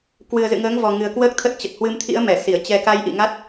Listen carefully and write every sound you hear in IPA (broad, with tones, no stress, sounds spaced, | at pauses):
k w ɨ˨˩ ə̯ z ɨ̰˧˨ ŋ əː˨˦ ŋ v ɔ˨˩ ŋ ɨ˨˩ ə̯ k w əː˦˥ k̚ t̪ʰ ə˦˥ t̚ t͡ɕ ə˨˩ t̚ h w ɨ˧ m t̪ʰ ḭ˧˥ ə̯ m ɛ˧˩ s i˧˩ ə̯ t͡ɕ ɛ˧ k a˧ j ʔ ḭ˧˨ ŋ a˦˥ t̚